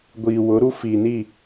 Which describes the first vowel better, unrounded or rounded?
unrounded